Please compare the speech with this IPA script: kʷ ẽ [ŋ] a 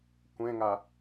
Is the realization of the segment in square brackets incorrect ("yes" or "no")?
no